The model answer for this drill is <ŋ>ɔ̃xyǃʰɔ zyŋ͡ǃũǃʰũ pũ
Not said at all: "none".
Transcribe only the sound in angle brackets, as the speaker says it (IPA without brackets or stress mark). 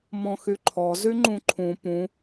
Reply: m